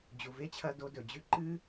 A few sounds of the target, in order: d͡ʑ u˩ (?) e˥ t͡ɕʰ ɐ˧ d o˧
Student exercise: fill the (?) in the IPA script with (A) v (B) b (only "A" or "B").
A